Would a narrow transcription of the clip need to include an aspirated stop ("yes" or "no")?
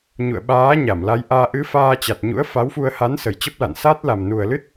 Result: no